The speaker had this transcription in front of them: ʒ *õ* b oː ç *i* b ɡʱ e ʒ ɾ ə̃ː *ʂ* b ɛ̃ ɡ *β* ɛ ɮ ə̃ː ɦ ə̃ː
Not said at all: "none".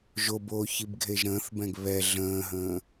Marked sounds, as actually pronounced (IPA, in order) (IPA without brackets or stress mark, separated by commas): o, i, θ, β